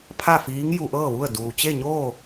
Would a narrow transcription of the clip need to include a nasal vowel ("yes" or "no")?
no